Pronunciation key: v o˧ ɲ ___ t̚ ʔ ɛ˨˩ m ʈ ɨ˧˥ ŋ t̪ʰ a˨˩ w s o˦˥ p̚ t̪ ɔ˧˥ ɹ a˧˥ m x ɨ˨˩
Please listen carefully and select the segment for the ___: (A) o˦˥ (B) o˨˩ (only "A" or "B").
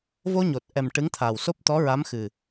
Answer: B